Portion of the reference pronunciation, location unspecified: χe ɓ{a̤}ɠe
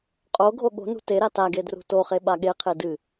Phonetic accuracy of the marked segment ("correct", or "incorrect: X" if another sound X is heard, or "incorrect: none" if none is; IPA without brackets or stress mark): incorrect: a